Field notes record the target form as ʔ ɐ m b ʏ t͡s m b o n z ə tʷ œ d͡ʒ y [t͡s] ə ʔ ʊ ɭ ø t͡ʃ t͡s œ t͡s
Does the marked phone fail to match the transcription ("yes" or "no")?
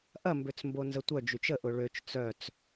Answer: yes